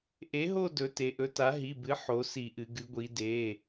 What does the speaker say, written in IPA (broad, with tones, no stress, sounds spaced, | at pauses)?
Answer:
ʔ e˩˥ ɦ o˦˨ d ɵ˩˧ t e˩˧ ʔ ɵ˩˥ t a˩˥ ɦ i˩˧˩ b ɨ˩˥ ħ o˩˧ s i˧˩˧ ʔ ɨ˩˧ ɡ ɨ˩˧ ɡʷ i˩˧ d e˩˧˩